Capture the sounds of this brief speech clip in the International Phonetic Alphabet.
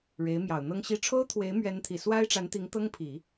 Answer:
ɻe˧˥ɪ̯mjɑ˨˩ʊ̯n̪ɤ˥ŋɕi˥˩ ʈ͡ʂʰo˥ʊ̯t̪ʰwe˧˥ɪ̯ mɥɛ˧˥nt̪ʰi˨˩ swa˥ɪ̯ ʈ͡ʂa˧˥nt̪i˧˥ŋ t̪ɤ˥ŋpʰi˨˩˦

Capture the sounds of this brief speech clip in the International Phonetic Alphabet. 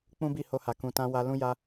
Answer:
k͡pũ˦bi˦˨ho˧ha˨ kũ˨tã˧ wa˧lũ˦ja˦

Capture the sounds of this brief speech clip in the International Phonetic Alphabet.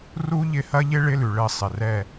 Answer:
ru˥ ʎɪ˦˨hɐ˥ʎɪ˥ ɭɪ˥lʉ˩ɭɘ˦˨ sˤɪ˩rɛ˦˨

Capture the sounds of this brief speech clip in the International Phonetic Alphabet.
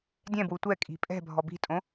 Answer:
dʲɛ̃bwu tʷɛkʼi̤ pʼɛ̤bʱɔ bi̤tʼõ

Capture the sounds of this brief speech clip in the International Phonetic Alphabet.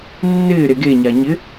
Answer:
nːɪː ɾeɡe ɲaɲɪ

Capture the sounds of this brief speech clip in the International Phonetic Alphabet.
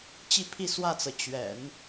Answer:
t͡ɕi˥˧pʰi˥˧swä˥˩t͡sɤ˩ t͡ɕɥɛ̰˨˩˦n

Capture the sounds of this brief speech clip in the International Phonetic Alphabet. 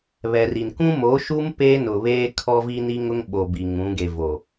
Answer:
βɛ˨ri˨n kũ˦moː˨˦ʃu˦m peː˦nʊ˨βeː˦ kʰɔ˦vi˦ ni˦ŋʊ˦ŋ ɓo˨ bi˨ŋũ˨˦ɡe˨ vo˨

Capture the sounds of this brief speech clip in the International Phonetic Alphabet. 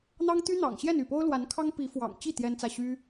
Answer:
n̪ɑ˥ŋ t̪y˥n̪ɑ̰˨˩ŋɕjɛ˥˧n y˥˩po˥ʊ̯ lwa˧˥nkʰɑ˥ŋ pi˧˥fwɑ̰˨˩ŋt͡ɕi˥˩ t̪jɛ˥nt͡sä˥˩ ɕy˥

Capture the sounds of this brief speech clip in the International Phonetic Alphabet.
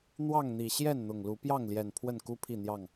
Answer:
n̪wɑ˥˨ŋn̪i˨˩ ɕjɛ˥˨nn̪ʊ˨˩ŋlu˨˦ pjɑ˥˨ŋljɛ˨˩n pʰwə˥˨nku˦ pʰi˥˨n̪jɑ˥˨ŋ

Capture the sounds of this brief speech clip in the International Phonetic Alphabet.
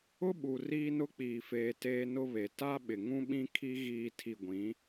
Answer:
ʊ˦ɓu˨ riː˦nʊ˦k͡piː˨feː˨ teː˦nʊ˦βe˨ ta˦ ɓɪ˨ŋũ˦ɓĩ˦kʰi˦ ɣiː˨ tʰi˨ɡʷĩ˨˦

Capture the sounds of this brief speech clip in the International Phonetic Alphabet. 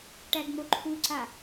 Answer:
ʈæɡŋ͡moǃʰuǀa

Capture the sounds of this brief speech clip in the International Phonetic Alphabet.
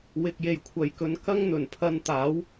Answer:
wɪ˨k̚je˨jkʷʰɐ˨jkɵ˧n kɐ˥ŋn̪ɵ˨˩npʰɐ˧n t̪aː˨˥w

